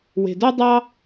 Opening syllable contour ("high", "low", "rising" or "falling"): low